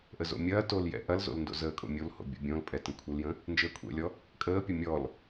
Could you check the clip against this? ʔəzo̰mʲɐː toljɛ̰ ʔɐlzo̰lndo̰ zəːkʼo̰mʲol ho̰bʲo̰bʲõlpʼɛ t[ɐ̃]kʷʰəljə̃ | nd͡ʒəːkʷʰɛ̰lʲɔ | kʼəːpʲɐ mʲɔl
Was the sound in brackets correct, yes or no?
no